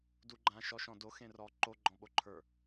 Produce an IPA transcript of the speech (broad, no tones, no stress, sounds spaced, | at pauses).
d u ɡ͡ǃ ã ʃ ɔ ʃ ɔ̃ d o x ẽ r ɔ ǃ o ɡ͡ǃ ɔ̃ ɓ o ǃʰ ə˞